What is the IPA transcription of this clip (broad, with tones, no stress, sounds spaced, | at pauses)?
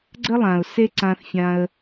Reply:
ɡ͡ǀ ə˥ lˠ ã˩ ʊ̯ s e˥ ǀ ã˧ θ fʲ ã˧ ə̯